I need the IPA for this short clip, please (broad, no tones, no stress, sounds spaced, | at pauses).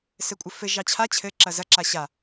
s ɘ kʷʼ ɘ f ɘ ʒ ɑ t͡ɕʰ a t͡ɕʰ ɘ ǁ ɐ z ɐ ǁ a ɕ a